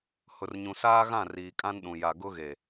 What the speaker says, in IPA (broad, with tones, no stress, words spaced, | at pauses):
hʊ˨rɲũ˨saː˦ɣã˦˨ riː˨kʼã˦nɗũ˨ ja˨ɡʊ˦ɣe˨